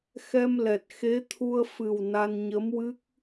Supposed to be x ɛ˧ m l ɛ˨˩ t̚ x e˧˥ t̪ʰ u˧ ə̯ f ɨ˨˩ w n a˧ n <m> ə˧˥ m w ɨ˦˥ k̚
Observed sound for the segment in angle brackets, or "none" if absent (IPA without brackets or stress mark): ɲ